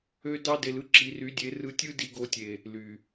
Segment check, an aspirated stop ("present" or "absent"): absent